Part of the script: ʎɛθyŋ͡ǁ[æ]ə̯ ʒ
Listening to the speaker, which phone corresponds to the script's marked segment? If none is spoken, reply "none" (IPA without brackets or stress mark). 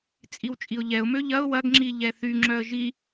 œ